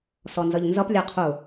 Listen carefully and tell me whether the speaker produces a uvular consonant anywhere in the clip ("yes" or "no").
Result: yes